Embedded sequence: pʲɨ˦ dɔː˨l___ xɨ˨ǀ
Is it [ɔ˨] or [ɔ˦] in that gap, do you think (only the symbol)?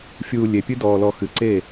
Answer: ɔ˨